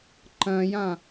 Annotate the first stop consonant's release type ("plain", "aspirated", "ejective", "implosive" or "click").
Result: click